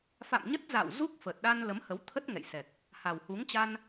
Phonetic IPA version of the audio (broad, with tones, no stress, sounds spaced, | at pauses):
f a̰˧˨ m ɲ ə˦˥ t̚ z a̰˧˨ w z u˦˥ k̚ f ə˨˩ t̚ ɗ a˧ n l ə˨˦ m h ə˨˦ w t̪ʰ ə˦˥ t̚ ŋ ɛ̰˧˨ j s ɛ˨˩ k̚ | h a˨˩ w h u˨˦ ŋ t͡ɕ a˧ n